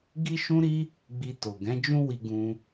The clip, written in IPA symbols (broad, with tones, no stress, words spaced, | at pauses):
ɡi˦ʃũ˦ɾi˦ | ɡ͡bi˧to˨ ɡɛ̃˨˦ d͡ʒũ˦wi˧ɡũ˧